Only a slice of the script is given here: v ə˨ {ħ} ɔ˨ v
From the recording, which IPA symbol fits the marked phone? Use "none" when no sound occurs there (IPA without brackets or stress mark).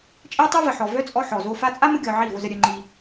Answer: ħ